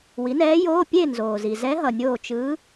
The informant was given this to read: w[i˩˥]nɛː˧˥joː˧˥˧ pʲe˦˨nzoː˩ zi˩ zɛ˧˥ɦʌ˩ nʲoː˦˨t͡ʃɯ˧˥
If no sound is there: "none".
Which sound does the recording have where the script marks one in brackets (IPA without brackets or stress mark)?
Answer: i˩˥